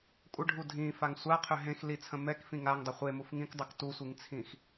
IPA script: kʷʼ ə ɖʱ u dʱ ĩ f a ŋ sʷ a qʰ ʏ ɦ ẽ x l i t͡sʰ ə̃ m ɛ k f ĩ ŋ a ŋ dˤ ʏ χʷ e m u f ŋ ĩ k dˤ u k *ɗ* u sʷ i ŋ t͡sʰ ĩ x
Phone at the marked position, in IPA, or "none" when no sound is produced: t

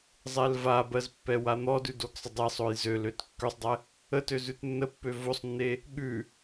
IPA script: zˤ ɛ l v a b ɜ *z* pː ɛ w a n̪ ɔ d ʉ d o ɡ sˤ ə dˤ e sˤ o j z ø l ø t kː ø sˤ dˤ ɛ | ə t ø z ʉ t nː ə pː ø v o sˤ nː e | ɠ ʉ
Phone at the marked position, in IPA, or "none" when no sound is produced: z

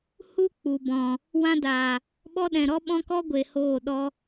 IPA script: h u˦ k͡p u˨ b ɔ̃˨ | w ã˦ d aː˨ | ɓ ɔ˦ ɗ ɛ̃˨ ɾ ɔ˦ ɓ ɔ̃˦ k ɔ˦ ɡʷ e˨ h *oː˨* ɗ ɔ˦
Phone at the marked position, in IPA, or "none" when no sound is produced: oː˦˨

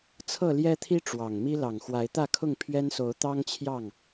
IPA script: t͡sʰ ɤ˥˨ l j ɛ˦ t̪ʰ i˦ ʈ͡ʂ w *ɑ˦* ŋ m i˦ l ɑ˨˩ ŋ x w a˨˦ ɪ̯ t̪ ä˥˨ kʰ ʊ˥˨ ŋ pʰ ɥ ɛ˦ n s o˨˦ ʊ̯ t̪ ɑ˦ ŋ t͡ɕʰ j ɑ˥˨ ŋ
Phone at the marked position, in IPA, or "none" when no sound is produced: ɑ˨˩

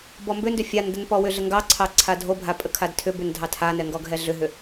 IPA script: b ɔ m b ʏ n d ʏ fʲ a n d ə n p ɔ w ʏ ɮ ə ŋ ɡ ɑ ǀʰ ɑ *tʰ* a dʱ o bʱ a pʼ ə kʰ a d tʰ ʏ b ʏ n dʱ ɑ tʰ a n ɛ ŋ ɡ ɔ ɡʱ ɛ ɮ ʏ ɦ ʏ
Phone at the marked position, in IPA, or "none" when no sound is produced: ǀʰ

